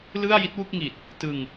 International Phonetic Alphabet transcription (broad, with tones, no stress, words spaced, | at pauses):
lɯ˥˩a̯ji˦˥t̚wu˥˩k̚ŋi˨˩t̚ | tɯ˧ŋ